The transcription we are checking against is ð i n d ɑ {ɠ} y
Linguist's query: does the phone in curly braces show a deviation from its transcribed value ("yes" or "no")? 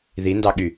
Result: no